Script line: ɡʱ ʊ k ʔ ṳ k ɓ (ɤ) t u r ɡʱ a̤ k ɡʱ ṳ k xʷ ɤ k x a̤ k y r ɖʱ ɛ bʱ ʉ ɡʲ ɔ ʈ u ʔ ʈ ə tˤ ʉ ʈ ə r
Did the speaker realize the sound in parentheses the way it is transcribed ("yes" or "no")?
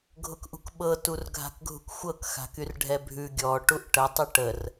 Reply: yes